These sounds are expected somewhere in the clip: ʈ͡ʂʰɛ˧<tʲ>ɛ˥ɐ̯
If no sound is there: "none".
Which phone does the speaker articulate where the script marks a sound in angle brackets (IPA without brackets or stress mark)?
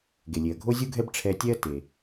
tʲ